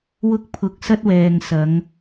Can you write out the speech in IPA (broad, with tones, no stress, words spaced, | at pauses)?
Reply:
wʊ˥k̚pʰʊ˧k̚sɐ˥t̚wɛː˨ŋ sɐ˨˧ŋ